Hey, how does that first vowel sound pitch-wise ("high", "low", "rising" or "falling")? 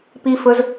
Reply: high